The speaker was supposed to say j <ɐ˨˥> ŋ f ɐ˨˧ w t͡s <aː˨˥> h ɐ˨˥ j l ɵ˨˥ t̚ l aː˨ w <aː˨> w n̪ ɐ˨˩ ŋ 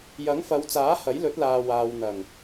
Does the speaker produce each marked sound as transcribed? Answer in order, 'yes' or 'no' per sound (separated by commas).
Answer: yes, yes, yes